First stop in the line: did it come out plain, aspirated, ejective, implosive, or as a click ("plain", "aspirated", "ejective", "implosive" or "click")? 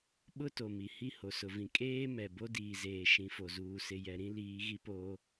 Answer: implosive